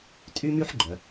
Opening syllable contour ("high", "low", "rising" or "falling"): high